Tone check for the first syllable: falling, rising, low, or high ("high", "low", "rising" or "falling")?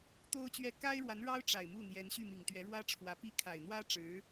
high